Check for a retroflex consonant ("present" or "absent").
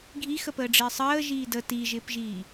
present